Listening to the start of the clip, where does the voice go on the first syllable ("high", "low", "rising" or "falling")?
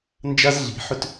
high